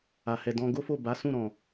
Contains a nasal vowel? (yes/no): yes